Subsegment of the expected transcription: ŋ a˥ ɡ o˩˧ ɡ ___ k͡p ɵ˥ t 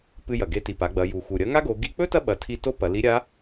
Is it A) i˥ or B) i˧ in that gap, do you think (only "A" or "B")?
B